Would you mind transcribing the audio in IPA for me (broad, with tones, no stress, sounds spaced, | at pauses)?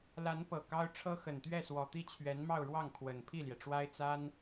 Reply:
l a˧˥ n p ɤ˨˩ k ɑ˥ ʊ̯ ʈ͡ʂʰ ɤ˥ x ə˨˩ n t̪ ɥ ɛ˥˩ s w ɔ˨˩ t̪ i˥˩ t͡ɕʰ ɥ ɛ˧˥ n m ɑ˥˧ ʊ̯ ɻ w ɑ˥˩ ŋ kʰ w ə˨˩ n pʰ i˥˩ l j ɛ˩ ʈ͡ʂ w a˥ ɪ̯ t͡s a˥ n